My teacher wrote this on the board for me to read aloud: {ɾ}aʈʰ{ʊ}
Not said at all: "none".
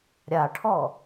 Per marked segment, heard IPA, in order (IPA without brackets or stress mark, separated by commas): ɾʲ, ɔ